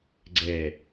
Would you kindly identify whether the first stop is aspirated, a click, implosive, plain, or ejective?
click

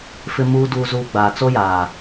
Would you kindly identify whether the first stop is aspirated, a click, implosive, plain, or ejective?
plain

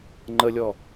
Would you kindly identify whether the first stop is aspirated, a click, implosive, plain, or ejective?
click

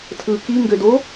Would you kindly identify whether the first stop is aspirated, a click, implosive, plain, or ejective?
aspirated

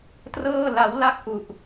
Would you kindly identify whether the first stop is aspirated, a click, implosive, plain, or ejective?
plain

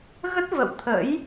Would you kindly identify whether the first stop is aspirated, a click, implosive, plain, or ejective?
plain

